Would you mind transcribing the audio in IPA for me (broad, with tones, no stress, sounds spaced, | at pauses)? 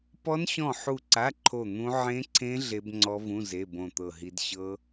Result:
p ɔ˦˥ n ɕ ɔ̃˦˨ ħ u˦˨ ǀ a˧˥˧ ǃʰ o˦˨ n̪ ũ˦˥ ʕ ẽ˦˥ ǀʰ ẽ˦˥ ɮ e˦˥ b ŋ͡ǀ ɔ˦˥ v ũ˧˥˧ z e˧˥˧ b õ˦˨ t̪ ɤ˦˨ ɦ i˦˥ d ɕ ɤ˦˥